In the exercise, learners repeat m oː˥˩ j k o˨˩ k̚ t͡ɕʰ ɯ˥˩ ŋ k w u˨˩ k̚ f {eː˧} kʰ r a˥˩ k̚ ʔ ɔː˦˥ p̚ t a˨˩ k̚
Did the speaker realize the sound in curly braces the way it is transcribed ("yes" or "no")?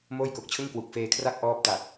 yes